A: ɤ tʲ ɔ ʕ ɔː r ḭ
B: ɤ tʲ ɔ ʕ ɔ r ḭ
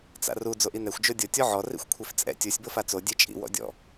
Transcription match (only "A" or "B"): B